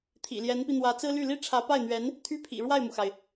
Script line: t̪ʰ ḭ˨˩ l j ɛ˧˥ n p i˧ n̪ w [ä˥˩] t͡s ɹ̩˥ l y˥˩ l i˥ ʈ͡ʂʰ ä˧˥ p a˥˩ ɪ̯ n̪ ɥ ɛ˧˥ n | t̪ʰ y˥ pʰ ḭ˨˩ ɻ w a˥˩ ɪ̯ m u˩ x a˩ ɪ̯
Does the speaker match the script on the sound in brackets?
no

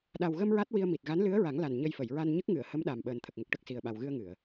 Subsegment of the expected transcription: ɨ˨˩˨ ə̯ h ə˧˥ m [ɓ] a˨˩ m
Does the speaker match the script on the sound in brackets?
no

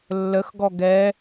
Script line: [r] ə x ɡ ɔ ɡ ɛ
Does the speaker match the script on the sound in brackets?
no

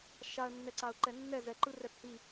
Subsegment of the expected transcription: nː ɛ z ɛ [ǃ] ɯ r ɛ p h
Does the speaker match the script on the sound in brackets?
yes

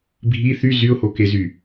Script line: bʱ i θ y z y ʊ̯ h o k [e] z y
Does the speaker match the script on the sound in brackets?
yes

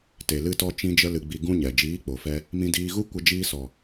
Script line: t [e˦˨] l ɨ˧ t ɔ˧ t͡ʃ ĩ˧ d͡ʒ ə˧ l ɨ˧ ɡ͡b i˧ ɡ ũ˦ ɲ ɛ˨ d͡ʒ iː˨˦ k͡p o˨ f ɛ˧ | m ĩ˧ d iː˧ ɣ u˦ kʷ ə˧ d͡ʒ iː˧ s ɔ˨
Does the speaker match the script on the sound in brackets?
no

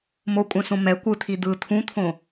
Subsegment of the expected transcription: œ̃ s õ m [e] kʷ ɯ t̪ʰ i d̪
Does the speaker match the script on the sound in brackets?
no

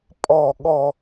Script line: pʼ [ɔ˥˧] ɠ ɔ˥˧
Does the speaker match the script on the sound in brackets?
yes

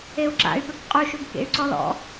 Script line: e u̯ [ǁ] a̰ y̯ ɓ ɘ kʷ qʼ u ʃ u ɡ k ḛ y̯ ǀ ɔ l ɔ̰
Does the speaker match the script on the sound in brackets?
yes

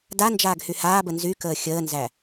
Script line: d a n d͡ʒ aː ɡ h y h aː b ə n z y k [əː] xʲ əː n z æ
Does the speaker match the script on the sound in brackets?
yes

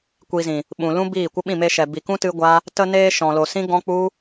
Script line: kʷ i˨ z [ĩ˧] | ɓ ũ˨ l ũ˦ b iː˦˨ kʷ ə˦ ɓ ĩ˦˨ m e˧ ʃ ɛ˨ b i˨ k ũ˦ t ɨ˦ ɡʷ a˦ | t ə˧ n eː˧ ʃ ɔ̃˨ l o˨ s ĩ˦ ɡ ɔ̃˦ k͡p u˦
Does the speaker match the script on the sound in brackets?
no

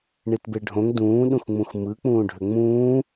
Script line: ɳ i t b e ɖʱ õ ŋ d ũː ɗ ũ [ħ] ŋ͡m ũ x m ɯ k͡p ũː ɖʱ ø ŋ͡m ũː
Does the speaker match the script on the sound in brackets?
no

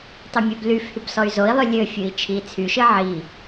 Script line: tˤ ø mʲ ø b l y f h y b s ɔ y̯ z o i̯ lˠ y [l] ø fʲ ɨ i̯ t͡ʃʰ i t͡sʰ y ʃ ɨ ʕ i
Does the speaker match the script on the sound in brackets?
no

